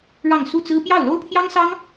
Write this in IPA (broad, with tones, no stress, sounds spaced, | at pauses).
ɻ ɑ˥˧ ŋ s u˥˩ t͡s ɹ̩˥ p j ɑ˥˩ ʊ̯ l o˥ ʊ̯ pʰ j ɑ˥ ŋ s ɑ˥ ŋ